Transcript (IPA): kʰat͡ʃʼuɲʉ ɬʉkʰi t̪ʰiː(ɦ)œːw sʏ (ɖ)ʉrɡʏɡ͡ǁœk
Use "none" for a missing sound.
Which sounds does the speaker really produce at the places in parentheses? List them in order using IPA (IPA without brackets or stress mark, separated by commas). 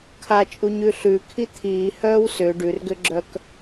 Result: h, ɖ